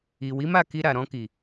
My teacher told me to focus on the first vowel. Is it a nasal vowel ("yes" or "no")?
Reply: no